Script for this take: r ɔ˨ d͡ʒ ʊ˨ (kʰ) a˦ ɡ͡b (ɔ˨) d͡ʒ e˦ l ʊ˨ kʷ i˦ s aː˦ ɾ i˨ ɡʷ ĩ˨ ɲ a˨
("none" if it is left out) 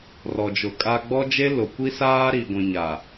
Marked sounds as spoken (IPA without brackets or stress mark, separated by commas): kʼ, ɔ˦